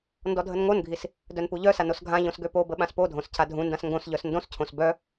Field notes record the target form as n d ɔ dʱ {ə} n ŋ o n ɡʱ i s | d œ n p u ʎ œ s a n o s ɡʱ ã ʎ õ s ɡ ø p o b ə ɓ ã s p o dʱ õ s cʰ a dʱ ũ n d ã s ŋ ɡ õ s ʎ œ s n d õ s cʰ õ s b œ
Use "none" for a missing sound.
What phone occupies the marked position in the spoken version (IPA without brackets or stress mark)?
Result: ə